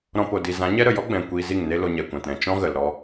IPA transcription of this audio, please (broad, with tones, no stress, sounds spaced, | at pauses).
ɾ ɔ̃˧ p o˨ d i˨ z ã˨˦ ɲ ɛ˦ ɾ ə˨ j ɔ˦ ɡ͡b ɛ̃˨ kʷ iː˧ z i˦˨ ŋ n e˦ l o˧ ɲ ɛ˨ kʷ ã˨ t ɾ ɛ̃˨ t͡ʃ ɔ̃˦ ɣ ə˨ l ɾ ɔ˧